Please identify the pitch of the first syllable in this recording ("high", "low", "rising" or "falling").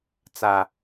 high